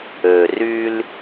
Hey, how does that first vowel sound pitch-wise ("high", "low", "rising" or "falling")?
low